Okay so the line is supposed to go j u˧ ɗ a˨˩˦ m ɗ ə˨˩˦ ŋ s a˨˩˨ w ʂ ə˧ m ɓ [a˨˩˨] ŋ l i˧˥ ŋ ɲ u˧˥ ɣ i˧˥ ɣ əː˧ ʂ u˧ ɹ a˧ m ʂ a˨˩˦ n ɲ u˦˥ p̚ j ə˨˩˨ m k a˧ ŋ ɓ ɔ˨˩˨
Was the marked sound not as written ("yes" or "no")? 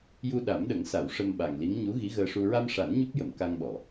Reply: yes